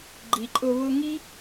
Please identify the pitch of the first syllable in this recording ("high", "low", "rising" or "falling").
low